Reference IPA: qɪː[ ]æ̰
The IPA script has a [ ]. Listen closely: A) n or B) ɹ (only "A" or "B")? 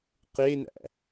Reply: A